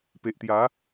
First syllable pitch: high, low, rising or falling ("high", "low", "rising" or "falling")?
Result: low